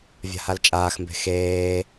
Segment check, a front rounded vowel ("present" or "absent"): absent